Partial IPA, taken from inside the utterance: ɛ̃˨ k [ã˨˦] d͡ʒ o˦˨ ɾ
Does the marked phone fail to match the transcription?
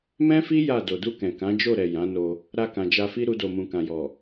no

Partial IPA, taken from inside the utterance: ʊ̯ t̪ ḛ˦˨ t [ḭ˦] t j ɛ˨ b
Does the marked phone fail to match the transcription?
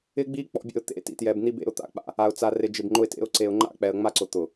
yes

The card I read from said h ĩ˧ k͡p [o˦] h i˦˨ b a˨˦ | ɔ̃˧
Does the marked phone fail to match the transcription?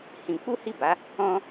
yes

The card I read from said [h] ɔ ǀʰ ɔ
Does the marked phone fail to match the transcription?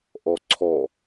yes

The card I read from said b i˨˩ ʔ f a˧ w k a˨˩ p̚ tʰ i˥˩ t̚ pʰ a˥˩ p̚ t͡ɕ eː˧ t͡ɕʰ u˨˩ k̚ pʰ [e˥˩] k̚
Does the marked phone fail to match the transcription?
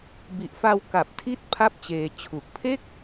no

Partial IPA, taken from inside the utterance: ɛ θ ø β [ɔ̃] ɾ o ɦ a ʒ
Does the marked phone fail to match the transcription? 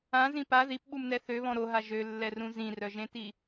no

